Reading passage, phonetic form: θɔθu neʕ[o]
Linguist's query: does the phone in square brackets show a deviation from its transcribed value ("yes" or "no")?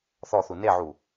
yes